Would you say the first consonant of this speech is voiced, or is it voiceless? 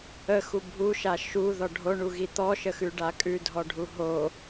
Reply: voiceless